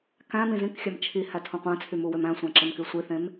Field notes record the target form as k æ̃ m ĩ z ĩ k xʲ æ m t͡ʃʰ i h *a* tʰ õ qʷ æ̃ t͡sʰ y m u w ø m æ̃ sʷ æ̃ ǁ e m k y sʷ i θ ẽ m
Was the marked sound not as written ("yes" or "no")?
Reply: yes